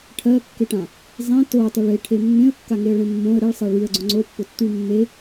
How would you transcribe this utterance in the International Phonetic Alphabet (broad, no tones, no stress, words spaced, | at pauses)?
ʈʰɜkːeʈã | zˤẽ totˤyɭ eʈʰe mːẽə̯kːaŋeə̯ɭẽ mːõə̯ ɾeɭsˤɜ ɭyə̯ɡ͡ǀõ ŋ͡ǀopːʊtːyɭ mːe